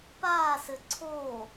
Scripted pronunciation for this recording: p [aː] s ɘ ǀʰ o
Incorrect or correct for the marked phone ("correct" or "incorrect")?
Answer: correct